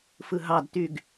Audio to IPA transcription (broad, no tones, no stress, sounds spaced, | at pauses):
f ɯ ɦ ɑ d t y ɡ